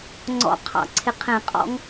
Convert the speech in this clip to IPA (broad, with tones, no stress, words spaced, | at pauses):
ŋ͡ǀɔ̰˨˦qʰɑ̰˨˩˦ ǀʰɪ˨qʰɛ̃˨˩˦ qʼɔ̰˨˦ŋ